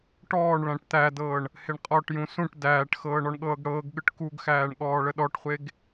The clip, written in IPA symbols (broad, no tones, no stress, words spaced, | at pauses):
ʈɔːɳ ɭæ̃ʈt̪ædɤːɳ | heɳqʼɔʈjũ sũʈ dæːʈxɤː ɳɔɳɠɤːɡɽɤːɡɠɯʈ kuɡxæːɳ ɠɔːɭəɗɔʈχʷeɡ